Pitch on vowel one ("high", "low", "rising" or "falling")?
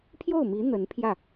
falling